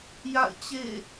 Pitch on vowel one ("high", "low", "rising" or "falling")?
falling